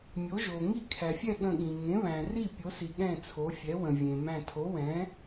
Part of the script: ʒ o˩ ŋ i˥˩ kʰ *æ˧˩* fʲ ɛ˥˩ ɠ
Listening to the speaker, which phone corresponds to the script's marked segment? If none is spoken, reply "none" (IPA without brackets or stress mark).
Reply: æ˩